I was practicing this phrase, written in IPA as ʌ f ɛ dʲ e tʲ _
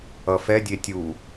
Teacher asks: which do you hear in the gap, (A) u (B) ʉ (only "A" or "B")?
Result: A